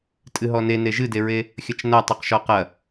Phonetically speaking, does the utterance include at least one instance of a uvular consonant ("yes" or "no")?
yes